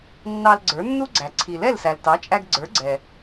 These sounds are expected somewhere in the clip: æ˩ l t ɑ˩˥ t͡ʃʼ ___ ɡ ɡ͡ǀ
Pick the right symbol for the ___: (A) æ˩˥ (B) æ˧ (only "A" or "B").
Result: B